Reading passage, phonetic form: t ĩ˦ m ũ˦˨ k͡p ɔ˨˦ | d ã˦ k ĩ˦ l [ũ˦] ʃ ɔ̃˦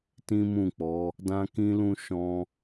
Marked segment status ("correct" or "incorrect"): correct